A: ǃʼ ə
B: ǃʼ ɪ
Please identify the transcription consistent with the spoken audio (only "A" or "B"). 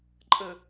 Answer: A